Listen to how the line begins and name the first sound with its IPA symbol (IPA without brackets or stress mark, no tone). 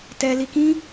t